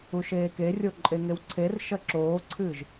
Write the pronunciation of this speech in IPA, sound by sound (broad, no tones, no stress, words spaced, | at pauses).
uʃeːkerʲo ǃʼeŋewǀʰerʃɐ ǁoːǀʰɨːʒ